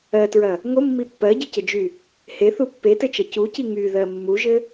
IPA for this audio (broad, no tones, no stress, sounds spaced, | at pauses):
ɜ t ɹ ɐ | ŋ o mː i pː ɜ ɟ ɘ c ə d͡ʒ y | h e θ u pː e t ɘ t͡ʃ ɐ c u c i ŋ y ð ɜ mː u ʒ ɘ